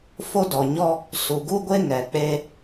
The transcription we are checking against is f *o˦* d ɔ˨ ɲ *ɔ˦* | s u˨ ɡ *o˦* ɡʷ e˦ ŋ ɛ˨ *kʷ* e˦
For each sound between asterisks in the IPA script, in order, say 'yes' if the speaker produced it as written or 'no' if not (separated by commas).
yes, yes, no, no